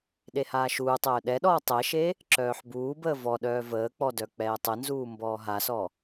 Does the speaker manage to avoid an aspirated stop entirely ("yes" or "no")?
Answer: yes